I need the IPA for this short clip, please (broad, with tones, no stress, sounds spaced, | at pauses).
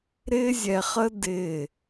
ɾ ɪː˦ zʲ ɛ˧ χ ə˦ d ɪː˦˨